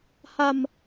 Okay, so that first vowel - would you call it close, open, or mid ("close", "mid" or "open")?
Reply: open